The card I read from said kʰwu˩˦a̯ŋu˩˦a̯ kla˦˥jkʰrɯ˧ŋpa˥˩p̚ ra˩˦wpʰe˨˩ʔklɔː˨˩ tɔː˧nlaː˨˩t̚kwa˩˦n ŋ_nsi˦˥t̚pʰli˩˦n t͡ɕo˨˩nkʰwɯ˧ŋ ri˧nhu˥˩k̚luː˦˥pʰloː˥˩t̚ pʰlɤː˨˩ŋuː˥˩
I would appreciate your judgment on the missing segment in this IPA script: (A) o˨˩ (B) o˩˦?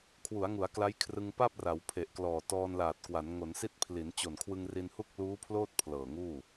B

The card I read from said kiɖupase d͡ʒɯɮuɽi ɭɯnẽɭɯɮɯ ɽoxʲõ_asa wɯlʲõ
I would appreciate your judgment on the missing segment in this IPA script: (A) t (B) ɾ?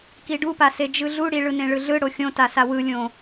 A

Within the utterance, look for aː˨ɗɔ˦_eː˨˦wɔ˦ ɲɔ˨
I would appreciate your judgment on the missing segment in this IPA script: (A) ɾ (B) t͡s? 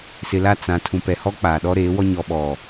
A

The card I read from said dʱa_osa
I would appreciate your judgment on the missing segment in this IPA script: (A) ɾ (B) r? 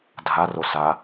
B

